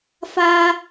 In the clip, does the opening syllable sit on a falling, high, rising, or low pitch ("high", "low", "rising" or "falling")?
high